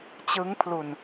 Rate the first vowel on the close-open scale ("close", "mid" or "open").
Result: close